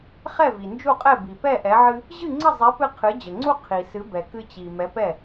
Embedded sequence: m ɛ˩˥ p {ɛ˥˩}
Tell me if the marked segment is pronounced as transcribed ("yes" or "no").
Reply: yes